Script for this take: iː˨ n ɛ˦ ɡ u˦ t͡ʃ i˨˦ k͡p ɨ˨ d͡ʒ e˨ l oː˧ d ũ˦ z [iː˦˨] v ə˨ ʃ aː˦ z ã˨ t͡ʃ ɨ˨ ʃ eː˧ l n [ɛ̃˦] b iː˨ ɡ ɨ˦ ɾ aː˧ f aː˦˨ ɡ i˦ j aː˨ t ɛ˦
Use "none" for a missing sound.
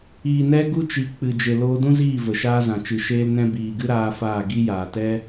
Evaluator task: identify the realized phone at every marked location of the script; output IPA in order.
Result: iː˦˨, ɛ̃˧

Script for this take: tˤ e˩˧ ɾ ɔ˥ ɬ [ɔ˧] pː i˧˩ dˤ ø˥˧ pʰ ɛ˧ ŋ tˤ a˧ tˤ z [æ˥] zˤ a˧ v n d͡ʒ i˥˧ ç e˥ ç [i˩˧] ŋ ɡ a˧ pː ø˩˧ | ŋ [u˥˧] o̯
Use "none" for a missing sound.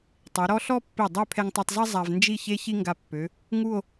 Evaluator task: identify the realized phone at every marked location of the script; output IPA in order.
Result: ɔ˥, ɛ˥, i˥, u˥˧

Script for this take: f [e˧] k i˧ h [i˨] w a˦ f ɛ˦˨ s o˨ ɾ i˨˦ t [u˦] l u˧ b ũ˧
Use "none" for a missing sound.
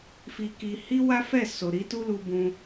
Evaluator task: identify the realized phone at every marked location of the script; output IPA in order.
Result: i˧, i˦, u˦

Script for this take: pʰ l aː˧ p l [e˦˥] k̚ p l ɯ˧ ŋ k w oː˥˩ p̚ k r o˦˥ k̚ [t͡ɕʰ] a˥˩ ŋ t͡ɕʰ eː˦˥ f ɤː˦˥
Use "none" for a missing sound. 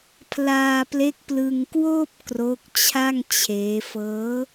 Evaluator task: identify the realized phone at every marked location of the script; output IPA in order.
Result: e˦˥, t͡ɕʰ

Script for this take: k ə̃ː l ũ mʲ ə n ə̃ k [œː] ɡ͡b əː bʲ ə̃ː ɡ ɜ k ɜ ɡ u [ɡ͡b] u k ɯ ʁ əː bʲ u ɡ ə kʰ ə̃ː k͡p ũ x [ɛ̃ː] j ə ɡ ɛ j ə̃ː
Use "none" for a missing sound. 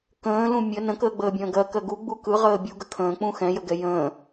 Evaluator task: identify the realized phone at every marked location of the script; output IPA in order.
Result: əː, ɡ͡b, ɛ̃

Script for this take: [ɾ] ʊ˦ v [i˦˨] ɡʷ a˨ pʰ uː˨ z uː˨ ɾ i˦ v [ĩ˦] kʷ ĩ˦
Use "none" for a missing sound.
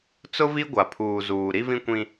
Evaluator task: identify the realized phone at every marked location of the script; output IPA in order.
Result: t͡s, i˦, ĩ˦

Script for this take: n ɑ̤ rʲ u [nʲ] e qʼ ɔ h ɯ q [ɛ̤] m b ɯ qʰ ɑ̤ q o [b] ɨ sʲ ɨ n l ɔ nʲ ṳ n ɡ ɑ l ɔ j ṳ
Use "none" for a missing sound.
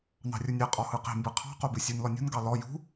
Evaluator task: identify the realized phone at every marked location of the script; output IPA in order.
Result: nʲ, e̤, b

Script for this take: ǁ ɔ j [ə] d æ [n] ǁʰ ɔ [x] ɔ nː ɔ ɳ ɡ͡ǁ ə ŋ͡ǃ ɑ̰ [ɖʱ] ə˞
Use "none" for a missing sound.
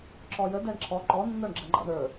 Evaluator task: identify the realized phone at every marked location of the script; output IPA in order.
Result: ə, ɳ, ǃ, ɳ

